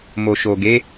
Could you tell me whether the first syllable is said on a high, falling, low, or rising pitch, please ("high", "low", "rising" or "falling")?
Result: low